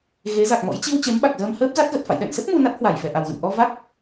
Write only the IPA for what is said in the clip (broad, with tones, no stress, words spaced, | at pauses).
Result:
ɣe˨˦za˨˩k̚mɔ̰˧˥j t͡ɕi˧w t͡ɕe˨˦mɓa˨˩k̚zəː˧m həː˦˥p̚za˦˥t̚ɣə˨˩t̚fa̰˧˨j ɗɛ̰˧˨nsə˦˥t̚ mu˧na˦˥t̚ hwa˧˩jfɛ˨˩ʔa˨˩wɣə̰˧˨n ʔɔ˧va˦˥k̚